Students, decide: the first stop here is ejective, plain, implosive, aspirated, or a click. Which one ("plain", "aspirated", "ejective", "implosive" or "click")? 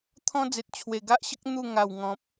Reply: aspirated